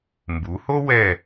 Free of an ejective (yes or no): yes